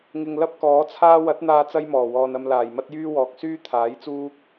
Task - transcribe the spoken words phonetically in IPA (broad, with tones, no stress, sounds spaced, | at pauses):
ŋ ɪ˨ ŋ l ɐ˥ p̚ k ɔː˨˥ t͡sʰ aː˥ w ɐ˨˥ t̚ n̪ aː˧ t͡s ɐ˥ j m ɔː˨˩ w ɔː˨ n ɐ˧ m l aː˨˩ j m ɐ˥ t̚ j yː˥ w ɔː˨ k̚ s yː˥ t̪ʰ aː˨˥ j t͡s uː˥ k̚